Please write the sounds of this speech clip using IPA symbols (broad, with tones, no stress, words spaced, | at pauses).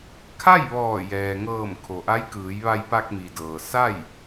kʰa˥˨jʋɔː˧˩ jɛː˩ŋɤː˧˩m kʰo˩ʔa˧˥jkɯː˩˧j ʋa˧jpa˧k̚mi˩dɤː˩ sa˥˨j